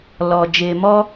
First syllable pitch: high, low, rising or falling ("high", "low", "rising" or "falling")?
low